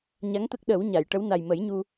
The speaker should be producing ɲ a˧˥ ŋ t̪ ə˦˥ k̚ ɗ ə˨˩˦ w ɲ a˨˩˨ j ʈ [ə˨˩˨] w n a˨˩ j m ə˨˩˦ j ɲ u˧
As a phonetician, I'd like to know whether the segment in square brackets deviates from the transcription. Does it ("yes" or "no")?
yes